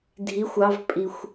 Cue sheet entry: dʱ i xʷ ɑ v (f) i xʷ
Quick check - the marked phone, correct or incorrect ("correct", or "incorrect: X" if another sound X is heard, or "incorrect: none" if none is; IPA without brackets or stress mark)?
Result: incorrect: pʼ